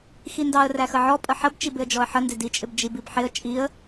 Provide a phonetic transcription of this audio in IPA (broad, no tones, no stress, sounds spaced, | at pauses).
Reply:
x i n d ɑ ə̯ r æ x ə ʕ ɔ pʼ ə ħ ə b t͡ʃ i b ɪ ə̯ d͡ʒ ɔ ə̯ ħ ə n d ɪ d i t͡ʃʼ ɪ b d͡ʒ i b i b ħ ɪ ə̯ t͡ʃʼ i ə̯